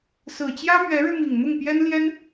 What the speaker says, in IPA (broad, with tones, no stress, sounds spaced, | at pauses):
s ɹ̩˨˩ t͡ɕ j ä˥ m ɥ ɛ˧˥ ɻ ɻ̩˧ m i˨˩ ŋ n̪ ʊ˥˩ ŋ p j ɛ˥ n l j ɛ˥ n